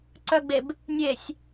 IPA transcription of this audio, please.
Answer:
ǀ œ ɡ͡b e b | nʲ e sʲ

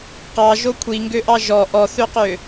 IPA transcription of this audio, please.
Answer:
q ɑ ʒ o kʷʰ i ŋ ɡ ø ʔ ɑ ʒ ɔ ʔ ɔ θ ø q ø

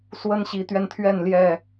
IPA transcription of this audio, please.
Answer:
s w ə˦ n ɕ i˨˦ t̪ ɥ ɛ˧ n t̪ʰ ɥ ɛ˥˨ n l j ɛ˥˨

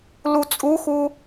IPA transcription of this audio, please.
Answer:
l u t͡sʼ u x u

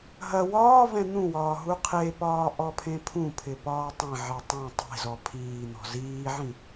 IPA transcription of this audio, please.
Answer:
ɦ ɐ w ɒː v ɛ̃ n̪ ũ w ɒː ɦ u qʰ e p ɒː ʔ ɔ pʰ ẽ pʰ ũ pʰ ɪ p ɒː tˤ ɐ̃ ʕ e tˤ ũ tˤ e̤ z ɔ pʰ iː n̪ ɔ̤ z iː ʕ ĩ

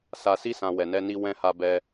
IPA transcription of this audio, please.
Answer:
s a˨ s i˧ s ã˨ w ɛ˨ n ɛ˧ n i˧ w ɛ̃˧ h a˧ b ɛ˧

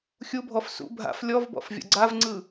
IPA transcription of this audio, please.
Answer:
xʲ u bʱ ɔ f s ṵ bʱ a̰ f lʲ ɔ v b ɔ̰ f vʲ ɔ̰ ɡ͡ǀ a v ŋ͡ǀ ɯ

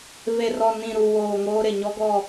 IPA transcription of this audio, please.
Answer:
v e˨ r ɔ˨ n ĩ˨ ɾ u˨ w oː˨ ŋ oː˦ ɾ ɪ˨ ɲ ɔ˦ ɡ ɔ˦˨

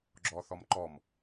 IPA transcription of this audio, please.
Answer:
ɡ͡ǁ ɔ θ ɔ m ǃ ɔ m

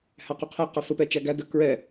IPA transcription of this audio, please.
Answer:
h æ q u qʰ ɛ q ə f ə p ɛ t͡ʃ æ ɡ æ d ə k ɹ ɛ

